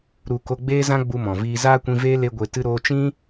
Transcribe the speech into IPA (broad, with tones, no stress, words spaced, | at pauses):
ɾu˨ ko˧ɡ͡beː˦zã˦ ɡ͡bu˧mɔ̃˨viː˧ zaː˦kʷĩ˧veː˦ le˦ɡʷe˧ tɨ˦ɾoː˦ t͡ʃĩ˦